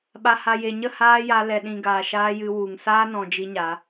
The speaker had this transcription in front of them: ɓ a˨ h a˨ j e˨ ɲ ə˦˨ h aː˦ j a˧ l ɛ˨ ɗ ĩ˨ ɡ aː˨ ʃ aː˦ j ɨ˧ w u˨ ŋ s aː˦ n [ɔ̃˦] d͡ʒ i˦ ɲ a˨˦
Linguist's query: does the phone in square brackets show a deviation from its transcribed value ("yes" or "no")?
yes